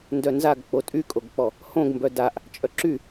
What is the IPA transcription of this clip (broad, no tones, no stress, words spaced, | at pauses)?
ndœnzaɡ k͡potʼykʼoɡk͡pɔ | hõɡmbœ daʔ | t͡ʃʼœǁy